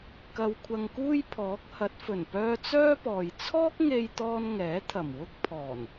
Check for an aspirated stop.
present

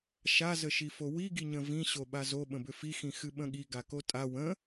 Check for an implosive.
present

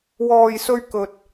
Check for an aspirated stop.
absent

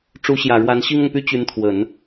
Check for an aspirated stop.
present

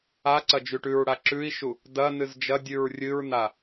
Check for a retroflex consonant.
present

